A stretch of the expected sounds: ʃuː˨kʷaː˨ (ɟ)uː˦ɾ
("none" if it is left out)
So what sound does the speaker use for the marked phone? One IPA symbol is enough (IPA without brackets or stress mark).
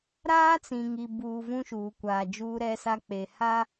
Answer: d͡ʒ